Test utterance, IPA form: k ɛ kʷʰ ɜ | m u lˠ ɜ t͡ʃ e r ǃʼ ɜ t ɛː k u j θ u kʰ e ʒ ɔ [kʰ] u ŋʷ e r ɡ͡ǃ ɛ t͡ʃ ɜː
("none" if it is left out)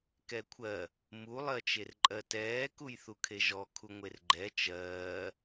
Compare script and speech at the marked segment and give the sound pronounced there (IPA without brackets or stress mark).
kʰ